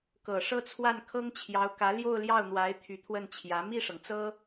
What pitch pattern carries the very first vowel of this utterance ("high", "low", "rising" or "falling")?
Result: low